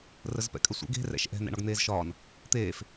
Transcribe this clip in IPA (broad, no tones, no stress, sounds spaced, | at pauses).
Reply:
r ə z p ɛ̰ kʼ ə sʷ ɛ̰ ɡ e̤ r ɛ̰ ʃ ʔ ɛ̤ n ɛ̰ ɳ ɒ ɡ n̪ eː z ʃ ɒː n | t̪ eː f